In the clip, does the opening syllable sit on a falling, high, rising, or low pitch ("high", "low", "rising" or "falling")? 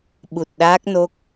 low